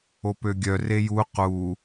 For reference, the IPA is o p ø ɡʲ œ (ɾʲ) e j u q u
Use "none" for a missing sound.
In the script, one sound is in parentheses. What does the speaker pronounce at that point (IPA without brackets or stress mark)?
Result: r